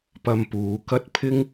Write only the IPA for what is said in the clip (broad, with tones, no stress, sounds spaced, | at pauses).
p ɐ˧ m p uː˨˧ k ɐ˥ t̚ pʰ ɪ˥ ŋ